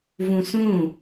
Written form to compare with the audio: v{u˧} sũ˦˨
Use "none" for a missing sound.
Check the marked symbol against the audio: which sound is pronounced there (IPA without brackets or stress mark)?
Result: ũ˧